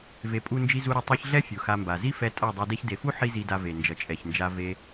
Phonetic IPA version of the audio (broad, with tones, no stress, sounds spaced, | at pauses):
v e˨ pʼ u˧ n d͡ʒ i˧ z u˧ ɾ ʌ˧ tˤ e˧ ç ɮ ɛ˦ fʲ u˨ x a˧ m b a˨ z i˦ f ɛ˧ tʼ a˦˨ dˤ o˧ d e˦ ç d e˨ f u˦ ħ i˦ z i˧ d a˧ v e˨ n d͡ʒ ʌ˨ t͡ʃʼ ɛ˨ ç n d͡ʒ a˧ v e˧